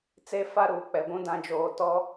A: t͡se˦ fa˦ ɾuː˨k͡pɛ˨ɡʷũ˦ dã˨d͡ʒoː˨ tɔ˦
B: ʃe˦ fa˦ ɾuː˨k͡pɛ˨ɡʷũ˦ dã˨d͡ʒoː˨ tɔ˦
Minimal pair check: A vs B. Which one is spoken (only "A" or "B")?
A